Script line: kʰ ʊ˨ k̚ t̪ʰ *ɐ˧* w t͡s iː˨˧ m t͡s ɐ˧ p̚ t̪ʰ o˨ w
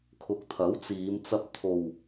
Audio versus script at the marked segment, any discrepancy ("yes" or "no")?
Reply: yes